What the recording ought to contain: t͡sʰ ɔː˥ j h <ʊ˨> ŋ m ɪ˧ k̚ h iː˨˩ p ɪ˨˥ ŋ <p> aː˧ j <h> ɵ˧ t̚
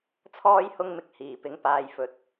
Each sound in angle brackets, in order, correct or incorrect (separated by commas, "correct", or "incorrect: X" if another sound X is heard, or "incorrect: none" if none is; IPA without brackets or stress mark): incorrect: ʊ˥, correct, incorrect: f